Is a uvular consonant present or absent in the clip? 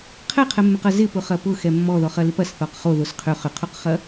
present